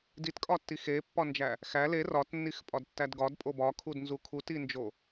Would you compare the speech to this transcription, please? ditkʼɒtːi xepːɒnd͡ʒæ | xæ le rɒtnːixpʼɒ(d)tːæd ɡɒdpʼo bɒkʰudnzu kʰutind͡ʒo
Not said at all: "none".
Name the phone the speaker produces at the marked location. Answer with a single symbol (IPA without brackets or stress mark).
d